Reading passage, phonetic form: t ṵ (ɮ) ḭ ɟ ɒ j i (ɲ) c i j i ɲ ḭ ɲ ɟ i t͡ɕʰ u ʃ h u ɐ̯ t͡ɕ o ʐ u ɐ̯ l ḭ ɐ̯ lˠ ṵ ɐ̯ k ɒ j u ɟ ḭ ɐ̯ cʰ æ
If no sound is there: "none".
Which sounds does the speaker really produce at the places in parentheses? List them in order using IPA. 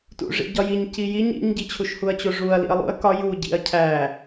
ʐ, ɲ

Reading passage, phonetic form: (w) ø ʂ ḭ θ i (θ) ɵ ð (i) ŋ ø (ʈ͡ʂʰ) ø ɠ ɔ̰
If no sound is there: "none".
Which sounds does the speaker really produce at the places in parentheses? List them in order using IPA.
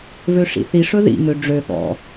v, ʂ, ḭ, ɖ͡ʐ

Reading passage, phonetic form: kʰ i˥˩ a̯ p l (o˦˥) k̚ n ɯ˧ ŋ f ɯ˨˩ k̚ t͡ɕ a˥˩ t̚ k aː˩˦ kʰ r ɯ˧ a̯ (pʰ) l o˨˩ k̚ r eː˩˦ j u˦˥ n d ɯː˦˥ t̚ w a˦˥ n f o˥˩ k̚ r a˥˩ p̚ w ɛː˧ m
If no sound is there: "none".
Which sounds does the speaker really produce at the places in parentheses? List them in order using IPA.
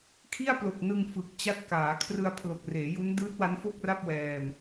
o˨˩, pʰ

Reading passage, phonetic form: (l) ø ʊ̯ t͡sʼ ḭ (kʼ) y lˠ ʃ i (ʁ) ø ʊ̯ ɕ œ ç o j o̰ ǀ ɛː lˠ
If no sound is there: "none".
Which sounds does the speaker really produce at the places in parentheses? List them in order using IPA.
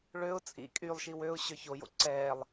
ɭ, kʼ, w

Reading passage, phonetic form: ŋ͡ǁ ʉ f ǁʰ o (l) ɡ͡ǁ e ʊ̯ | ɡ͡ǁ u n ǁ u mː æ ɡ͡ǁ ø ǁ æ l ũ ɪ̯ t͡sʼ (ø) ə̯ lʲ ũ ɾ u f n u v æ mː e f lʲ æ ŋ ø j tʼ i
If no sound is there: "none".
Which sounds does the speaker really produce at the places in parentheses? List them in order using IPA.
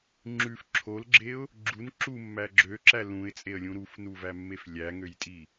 l, e

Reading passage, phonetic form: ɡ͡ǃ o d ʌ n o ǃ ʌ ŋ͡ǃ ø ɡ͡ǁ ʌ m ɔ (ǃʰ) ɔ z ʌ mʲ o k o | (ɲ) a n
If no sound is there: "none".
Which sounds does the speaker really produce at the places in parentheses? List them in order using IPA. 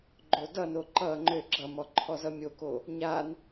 ǃʰ, ɲ

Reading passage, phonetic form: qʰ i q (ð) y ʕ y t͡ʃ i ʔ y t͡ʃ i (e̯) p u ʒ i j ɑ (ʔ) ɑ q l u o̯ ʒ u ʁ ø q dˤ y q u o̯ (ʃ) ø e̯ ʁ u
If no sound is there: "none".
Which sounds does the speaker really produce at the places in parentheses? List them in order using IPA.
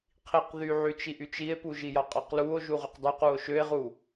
ð, e̯, qʼ, ʃ

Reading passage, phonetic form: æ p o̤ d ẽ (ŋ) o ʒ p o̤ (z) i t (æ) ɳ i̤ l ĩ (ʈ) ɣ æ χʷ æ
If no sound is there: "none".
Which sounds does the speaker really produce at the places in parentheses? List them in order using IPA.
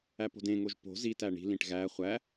ŋ, z, æ, ʈ

